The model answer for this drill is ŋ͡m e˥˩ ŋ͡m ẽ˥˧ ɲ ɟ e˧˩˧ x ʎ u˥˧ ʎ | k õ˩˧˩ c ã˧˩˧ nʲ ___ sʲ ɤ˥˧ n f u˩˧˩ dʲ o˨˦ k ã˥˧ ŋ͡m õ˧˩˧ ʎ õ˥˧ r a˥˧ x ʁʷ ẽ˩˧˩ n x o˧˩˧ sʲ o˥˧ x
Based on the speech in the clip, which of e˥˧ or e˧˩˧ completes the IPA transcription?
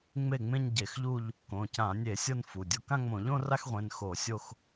e˧˩˧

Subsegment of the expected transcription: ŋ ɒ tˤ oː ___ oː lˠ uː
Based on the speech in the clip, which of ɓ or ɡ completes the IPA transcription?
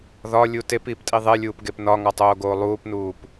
ɡ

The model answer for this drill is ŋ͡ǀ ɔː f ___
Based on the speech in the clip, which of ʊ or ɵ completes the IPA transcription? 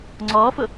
ʊ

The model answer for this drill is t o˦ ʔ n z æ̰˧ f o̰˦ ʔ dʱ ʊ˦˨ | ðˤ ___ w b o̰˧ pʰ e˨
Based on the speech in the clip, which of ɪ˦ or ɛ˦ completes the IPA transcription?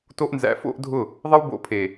ɪ˦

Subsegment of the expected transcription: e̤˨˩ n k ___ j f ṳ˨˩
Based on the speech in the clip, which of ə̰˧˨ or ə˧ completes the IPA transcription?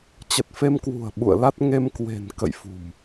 ə̰˧˨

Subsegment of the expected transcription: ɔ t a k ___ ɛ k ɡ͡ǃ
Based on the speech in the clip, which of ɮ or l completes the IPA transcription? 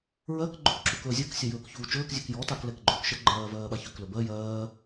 l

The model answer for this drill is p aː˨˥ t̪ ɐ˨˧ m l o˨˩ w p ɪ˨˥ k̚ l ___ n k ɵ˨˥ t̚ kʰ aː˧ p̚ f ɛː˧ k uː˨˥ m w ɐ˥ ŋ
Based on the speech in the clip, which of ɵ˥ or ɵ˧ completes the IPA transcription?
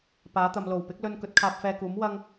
ɵ˧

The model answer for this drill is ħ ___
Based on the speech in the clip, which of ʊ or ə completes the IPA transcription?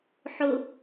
ʊ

